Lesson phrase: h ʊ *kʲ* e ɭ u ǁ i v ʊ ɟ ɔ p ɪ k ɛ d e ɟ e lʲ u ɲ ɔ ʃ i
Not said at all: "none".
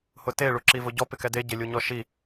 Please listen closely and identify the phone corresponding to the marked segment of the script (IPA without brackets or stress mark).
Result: t